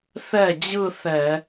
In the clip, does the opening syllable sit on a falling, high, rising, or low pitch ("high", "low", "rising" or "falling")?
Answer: falling